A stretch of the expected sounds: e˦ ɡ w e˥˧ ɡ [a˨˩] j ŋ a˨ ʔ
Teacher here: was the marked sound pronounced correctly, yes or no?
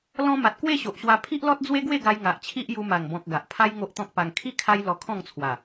no